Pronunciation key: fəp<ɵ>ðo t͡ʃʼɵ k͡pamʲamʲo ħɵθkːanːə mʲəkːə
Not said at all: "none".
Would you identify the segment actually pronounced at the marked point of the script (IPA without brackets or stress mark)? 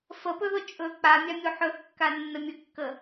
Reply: ɵ